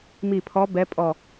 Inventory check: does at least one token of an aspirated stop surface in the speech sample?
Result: yes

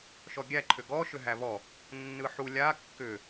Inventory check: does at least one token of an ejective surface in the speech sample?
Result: no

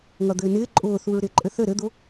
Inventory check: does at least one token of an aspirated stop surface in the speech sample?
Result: no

